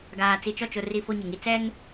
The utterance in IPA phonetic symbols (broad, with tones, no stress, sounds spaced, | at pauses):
ɡ aː˨ t͡s i˨ t͡ʃ ɔ˦˨ t͡ʃ ʊ˨ r i˨ f o˦ ɲ ɪ˨ ŋ i˦ t͡s ɛ˦ ŋ